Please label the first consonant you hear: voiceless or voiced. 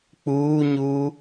voiceless